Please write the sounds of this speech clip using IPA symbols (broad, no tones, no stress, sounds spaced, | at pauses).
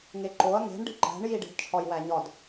ŋ e ǃ o ɐ̯ ŋ e̤ ɳ ɖ i̤ ǃ æ̤ ɳ j i ɖ i̤ d t͡ʃʰ ɒ j w æ ɲ ɒ d